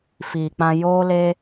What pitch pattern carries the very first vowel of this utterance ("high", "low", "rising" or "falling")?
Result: low